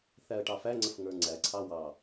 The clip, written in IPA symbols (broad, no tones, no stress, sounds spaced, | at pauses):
θ æ ə̯ ʈ ɑ f æ ŋ͡ǀ ə f ŋ ə˞ ŋ͡ǀ æ ǀʰ ɑ w ɑ